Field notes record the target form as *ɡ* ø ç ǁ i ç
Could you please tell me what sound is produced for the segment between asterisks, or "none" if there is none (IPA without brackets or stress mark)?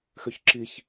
x